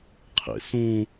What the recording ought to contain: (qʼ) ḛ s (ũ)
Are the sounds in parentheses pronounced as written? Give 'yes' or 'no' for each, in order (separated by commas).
no, yes